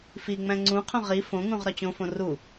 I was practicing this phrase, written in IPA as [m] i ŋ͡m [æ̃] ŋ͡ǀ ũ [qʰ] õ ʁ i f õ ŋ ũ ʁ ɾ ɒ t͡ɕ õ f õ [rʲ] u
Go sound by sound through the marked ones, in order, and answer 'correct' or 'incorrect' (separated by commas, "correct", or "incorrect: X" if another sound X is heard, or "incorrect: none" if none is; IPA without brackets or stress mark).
incorrect: f, correct, correct, incorrect: r